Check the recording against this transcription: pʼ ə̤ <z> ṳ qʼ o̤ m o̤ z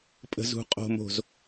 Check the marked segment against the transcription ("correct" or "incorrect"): correct